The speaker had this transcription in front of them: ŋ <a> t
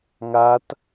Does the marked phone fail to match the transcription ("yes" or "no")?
no